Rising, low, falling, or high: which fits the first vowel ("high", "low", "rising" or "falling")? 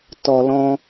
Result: low